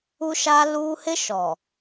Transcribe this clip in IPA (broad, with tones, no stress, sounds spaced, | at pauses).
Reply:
u˦ ʃ a˦ l u˦ h ɪ˦ ʃ ɔ˨